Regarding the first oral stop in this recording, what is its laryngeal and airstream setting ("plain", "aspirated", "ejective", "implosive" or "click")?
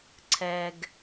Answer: click